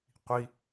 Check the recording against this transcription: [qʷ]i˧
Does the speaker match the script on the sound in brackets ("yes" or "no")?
yes